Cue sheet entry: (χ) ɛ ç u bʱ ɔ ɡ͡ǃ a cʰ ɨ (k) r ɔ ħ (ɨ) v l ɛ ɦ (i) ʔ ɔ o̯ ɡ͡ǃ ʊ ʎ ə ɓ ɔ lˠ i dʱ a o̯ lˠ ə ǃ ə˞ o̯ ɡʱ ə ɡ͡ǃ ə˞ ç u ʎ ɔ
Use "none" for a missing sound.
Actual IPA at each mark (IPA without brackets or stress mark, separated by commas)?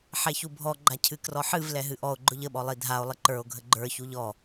ħ, k, ɨ, ɨ